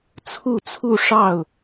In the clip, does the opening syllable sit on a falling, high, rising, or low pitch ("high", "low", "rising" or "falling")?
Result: falling